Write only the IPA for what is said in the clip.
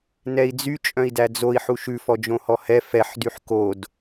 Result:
n ɛ i̯ d͡z y t͡ʃʼ œ̃ i̯ d æ d͡z o i̯ ħ u ʃ ʉ f ɔ d͡ʒ õ h ɔ h ɛ f ɛ ħ d y ħ k o d

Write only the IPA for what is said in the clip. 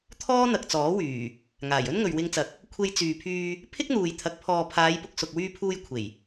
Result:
t̪ʰ ɔː˥ n̪ ɐ˨ k̚ t͡s ɔː˨˥ w yː˨˩ | ŋ aː˨˩ j ɵ˥ n ŋ ɵ˨ ɥ w ɪ˧ ŋ t͡s ɐ˨˥ k̚ | kʷʰ e˧ j t͡s yː˨ pʰ yː˧ | pʰ ɪ˥ k̚ n̪ uː˨ j t̪ʰ ɐ˨˥ k̚ pʰ ɔː˨ pʰ aː˨˧ j p ʊ˨ k̚ s ʊ˨ k̚ w yː˧ pʰ uː˧ j kʷʰ e˨˩ j

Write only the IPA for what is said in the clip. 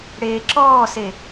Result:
ɽ eː ǁ ɔː s e

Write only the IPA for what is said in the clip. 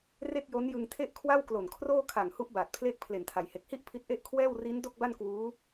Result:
r e˥˩ k̚ j o˦˥ n j ɯ˧ ŋ tʰ e˥˩ ʔ kʰ w a˥˩ w k l o˨˩ n kʰ r oː˥˩ kʰ a˨˩ ŋ h u˦˥ ʔ b aː˨˩ t̚ pʰ l eː˥˩ k̚ pʰ l e˨˩ n tʰ a˩˦ j h e˨˩ k̚ h i˥˩ ʔ pʰ i˦˥ t̚ ʔ e˥˩ ʔ kʰ w ɛː˥˩ w r i˦˥ n d o˥˩ k̚ b a˥˩ n k w uː˦˥

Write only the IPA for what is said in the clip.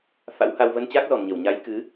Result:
f a̰˧˥ w h a˧ w v ə˧ n t͡ɕ aː˦˥ k̚ z ɔ˨˩ m ɲ ə˧˩ w ɲ a˨˦ j k ɨ˨˦

